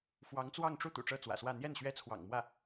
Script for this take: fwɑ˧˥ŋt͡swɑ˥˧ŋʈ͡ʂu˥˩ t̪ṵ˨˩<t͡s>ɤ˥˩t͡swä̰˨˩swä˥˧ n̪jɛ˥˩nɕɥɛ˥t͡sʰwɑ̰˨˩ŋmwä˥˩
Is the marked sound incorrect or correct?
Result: incorrect